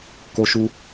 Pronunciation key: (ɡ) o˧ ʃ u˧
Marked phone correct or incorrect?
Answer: incorrect